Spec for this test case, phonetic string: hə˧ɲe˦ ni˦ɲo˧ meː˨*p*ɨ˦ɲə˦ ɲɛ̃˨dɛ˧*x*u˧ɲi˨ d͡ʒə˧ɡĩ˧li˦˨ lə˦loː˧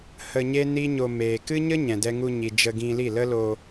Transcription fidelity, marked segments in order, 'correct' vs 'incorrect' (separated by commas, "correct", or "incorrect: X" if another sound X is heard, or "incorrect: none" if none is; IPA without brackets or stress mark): incorrect: k, incorrect: ŋ